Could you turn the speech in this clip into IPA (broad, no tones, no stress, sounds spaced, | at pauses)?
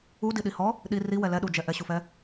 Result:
u d i ɗ i h ɔ | ɗ i r i w ɛ l ɛ ɗ u d͡ʒ ɛ ʔ ɛ ɕ u f ɛ